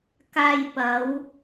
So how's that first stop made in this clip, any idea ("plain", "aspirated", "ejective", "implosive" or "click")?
plain